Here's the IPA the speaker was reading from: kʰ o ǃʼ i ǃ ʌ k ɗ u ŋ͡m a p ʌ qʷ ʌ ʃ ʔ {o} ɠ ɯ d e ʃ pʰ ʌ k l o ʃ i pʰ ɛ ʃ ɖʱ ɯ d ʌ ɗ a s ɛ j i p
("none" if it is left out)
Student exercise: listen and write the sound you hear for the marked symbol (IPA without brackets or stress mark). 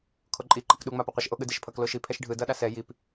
o